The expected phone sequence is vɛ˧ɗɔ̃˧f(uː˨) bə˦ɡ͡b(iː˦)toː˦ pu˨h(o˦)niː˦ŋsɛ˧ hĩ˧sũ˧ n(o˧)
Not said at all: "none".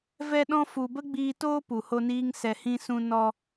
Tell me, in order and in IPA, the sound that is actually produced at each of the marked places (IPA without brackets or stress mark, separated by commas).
u˨, iː˧, o˦, ɔ˧